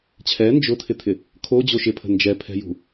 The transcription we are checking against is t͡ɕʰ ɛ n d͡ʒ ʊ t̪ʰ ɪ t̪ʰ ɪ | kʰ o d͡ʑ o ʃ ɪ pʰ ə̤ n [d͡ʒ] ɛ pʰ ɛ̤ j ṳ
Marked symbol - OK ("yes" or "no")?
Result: yes